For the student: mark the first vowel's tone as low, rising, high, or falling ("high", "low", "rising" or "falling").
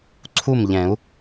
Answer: falling